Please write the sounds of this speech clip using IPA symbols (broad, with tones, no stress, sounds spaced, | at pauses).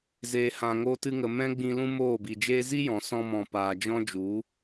z eː˨ h ã˨ ŋ oː˧ t ɨ˧ ŋ ə˨ m ɛ̃˦ ɡ͡b ĩ˧ l ũ˦ m oː˦˨ b i˨ d͡ʒ eː˦ z i˦ j ɔ̃˨ s ɔ̃˧ m ɔ̃˨ p aː˨ d͡ʒ ɔ̃˦ d͡ʒ u˨˦